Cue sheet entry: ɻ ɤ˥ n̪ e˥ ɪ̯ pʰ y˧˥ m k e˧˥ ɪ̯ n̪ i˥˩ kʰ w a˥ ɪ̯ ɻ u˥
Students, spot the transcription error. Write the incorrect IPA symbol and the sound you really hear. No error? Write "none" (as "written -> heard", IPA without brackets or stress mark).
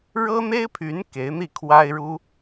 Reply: m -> n